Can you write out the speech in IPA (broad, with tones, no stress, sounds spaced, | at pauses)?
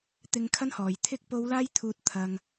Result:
t̪ ɪ˧ ŋ kʰ ɐ˥ n h ɔː˨ j t̪ʰ ɪ˥ k̚ p o˨˧ w l aː˧ j t̪ʰ uː˨ t̚ t̪ʰ ɐ˧ ŋ